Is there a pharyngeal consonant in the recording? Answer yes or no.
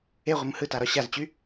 no